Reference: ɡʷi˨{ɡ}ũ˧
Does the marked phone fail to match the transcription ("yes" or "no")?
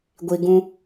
no